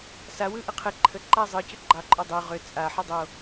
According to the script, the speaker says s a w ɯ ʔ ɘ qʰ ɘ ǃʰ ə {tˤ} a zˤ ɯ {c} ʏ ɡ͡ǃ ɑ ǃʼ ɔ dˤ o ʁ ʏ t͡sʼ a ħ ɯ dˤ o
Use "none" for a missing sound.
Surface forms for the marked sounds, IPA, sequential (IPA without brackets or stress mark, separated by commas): ǃ, c